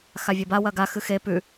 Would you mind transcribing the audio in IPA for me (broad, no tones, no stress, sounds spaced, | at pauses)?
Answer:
x a vʲ ɐ b a w ɐ ɡ a x ɨ x e p ʉ